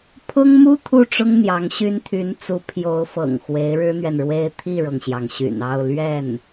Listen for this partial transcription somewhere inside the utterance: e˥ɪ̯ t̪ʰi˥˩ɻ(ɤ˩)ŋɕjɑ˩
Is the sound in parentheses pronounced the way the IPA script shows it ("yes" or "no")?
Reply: yes